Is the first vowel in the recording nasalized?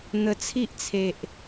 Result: no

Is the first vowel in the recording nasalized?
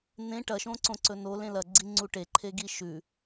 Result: yes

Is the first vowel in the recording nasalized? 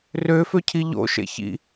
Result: no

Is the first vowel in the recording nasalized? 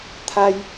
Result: no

